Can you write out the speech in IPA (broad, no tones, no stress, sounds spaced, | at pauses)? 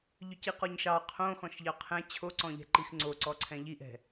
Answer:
ʎ ʏ c i q ɔ ɲ ʃ ɑ qʰ õ x ɔ̃ ʃ ʎ ɑ qʰ ɛ̃ t͡ɕʰ o ǀ ɔ̃ ʎ ɛ̤ ǃ i x ŋ͡ǀ o ǀ ɔ ǀʰ ɛ̃ ʎ i ʔ ɛ̤